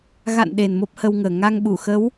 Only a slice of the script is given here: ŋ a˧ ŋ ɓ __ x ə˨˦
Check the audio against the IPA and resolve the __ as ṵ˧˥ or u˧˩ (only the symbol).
u˧˩